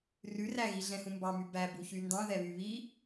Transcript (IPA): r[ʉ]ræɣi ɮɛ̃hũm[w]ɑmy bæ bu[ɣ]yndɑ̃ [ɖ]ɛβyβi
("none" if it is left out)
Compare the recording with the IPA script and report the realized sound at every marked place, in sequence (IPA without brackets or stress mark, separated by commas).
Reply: ʉ, b, ç, ð